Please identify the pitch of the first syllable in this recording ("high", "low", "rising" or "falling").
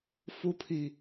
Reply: high